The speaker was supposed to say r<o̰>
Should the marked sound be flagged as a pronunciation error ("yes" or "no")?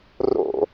no